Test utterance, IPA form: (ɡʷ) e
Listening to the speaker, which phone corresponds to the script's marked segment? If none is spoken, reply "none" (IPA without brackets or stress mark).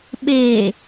ɓ